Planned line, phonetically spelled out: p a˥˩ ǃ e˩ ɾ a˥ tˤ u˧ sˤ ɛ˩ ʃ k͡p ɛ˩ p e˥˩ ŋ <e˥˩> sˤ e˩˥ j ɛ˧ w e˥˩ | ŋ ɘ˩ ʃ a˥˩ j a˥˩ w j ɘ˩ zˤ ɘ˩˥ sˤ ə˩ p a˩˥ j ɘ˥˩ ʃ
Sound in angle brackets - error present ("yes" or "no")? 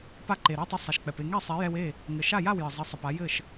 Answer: yes